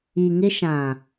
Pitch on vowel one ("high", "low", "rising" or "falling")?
low